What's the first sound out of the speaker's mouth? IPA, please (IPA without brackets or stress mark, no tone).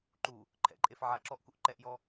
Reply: ǃ